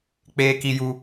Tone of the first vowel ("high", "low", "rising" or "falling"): high